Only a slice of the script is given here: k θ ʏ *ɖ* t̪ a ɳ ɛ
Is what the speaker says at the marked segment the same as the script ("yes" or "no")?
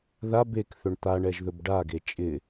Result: no